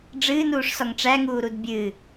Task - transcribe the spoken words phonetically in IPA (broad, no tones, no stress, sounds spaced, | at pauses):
ɖ͡ʐ ɨː n uː ʂ s ɒ ŋ ʈ͡ʂ æ ŋ uː ɾ u d bʲ ɨ